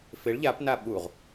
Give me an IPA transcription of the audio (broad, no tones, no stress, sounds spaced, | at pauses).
f ɪ ɭ ʎ a p n a ɓ u ʁ